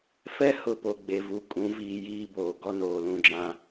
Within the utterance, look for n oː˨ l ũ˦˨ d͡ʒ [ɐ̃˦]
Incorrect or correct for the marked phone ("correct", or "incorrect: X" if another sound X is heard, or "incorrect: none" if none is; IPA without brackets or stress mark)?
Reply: incorrect: ã˦